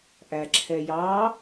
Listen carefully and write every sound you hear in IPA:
ʔæǁʰɛjɑ

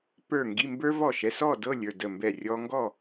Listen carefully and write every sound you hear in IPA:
pə˞˧˩ ŋɡi˩˧˩mbə˞˧vɔ˧˩ ʃɛ˩˧˩sɔ˥˨ dɤ˥˨lʲə˞˥˨də˧˩mbɛ˧˩ rʲɔ˧ŋɡɔ˥˨

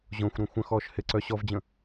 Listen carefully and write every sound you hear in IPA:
ʑõxʷ ɾõxʷə̃xɔːʃ hɪǀœ ɕɔvd͡ʑə̃

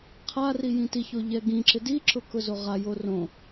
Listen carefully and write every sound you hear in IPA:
qʰari jĩtiço ʎɛɡĩǁɪ diǁʊ kʊzoʁajo rõ

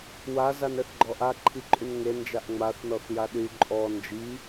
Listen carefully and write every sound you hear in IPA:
wa zanɛθɡ͡ǃɔʔa ǃʰiǃʼynŋe nd͡ʒaʔŋ͡maθ nɔθjaɗy ǃʼɔ nd͡ʒi

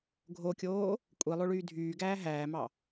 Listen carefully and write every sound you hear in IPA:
ɡʱokʲoː | kʷʼilˠoɭyː dʱyːɡæː ɦæːmɑ

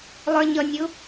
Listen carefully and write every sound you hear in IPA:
lˠə˞ɲʌnʲʊ

